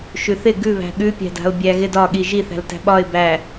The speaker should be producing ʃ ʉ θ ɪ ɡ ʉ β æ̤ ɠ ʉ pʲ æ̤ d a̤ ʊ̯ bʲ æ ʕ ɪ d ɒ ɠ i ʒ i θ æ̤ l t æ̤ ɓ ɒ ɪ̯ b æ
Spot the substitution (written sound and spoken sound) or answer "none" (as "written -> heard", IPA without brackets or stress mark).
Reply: ʕ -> ɣ